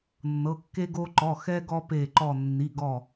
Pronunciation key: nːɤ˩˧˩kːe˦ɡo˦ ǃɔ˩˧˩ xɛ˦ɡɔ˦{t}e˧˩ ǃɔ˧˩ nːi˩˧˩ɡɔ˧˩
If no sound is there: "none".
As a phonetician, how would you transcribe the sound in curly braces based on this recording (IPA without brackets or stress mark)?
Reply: p